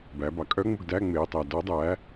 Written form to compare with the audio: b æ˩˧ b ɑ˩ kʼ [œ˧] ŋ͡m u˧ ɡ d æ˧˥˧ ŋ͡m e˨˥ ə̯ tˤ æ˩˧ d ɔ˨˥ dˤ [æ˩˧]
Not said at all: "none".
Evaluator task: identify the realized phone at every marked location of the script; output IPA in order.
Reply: œ˦˥, æ˨˥

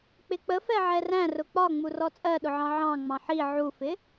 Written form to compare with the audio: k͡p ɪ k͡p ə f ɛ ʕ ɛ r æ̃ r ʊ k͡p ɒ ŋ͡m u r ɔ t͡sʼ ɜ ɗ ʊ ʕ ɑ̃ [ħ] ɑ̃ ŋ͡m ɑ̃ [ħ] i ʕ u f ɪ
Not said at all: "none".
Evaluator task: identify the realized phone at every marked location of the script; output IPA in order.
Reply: ʕ, ħ

